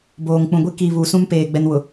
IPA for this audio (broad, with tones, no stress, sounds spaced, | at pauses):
b oː˨ ŋ k͡p ũ˨ ɡʷ i˦ k i˨ β u˨ s ũ˦ m p eː˨ ɡ͡b ɛ˦ n w ʊ˨